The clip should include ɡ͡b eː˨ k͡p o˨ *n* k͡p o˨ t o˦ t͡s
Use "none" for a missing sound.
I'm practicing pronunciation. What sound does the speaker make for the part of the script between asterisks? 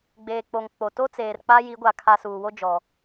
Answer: ŋ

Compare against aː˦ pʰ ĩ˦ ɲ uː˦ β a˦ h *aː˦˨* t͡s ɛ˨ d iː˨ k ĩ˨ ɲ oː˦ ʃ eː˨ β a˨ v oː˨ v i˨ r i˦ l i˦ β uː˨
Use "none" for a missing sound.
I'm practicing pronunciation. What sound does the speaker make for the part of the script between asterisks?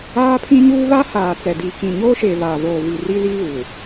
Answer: aː˨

